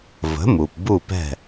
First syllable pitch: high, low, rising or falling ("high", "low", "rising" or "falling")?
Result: rising